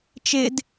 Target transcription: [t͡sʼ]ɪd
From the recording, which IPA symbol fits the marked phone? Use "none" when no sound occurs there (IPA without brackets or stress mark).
t͡ʃ